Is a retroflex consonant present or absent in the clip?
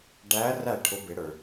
present